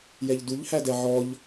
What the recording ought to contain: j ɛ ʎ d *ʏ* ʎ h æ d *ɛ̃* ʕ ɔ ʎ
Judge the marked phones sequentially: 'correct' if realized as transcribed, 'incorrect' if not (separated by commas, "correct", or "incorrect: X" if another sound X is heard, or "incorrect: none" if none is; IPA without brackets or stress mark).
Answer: incorrect: u, incorrect: ɛ